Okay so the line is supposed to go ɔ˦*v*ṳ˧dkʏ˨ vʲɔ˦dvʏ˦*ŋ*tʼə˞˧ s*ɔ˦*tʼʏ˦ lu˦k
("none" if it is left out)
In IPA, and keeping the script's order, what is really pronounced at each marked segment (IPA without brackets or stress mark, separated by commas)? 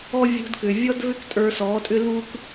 vʲ, k, ɔ˨˦